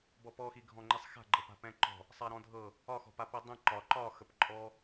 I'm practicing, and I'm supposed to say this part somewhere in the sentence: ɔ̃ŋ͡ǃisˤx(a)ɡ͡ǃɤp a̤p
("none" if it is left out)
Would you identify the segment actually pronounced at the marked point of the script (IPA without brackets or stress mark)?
a̤